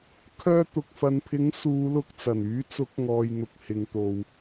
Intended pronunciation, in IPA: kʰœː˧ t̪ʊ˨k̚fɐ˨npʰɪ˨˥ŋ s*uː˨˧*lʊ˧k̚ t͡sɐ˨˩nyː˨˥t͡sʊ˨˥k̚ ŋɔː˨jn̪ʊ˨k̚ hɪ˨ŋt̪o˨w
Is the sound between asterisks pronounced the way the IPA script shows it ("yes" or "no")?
yes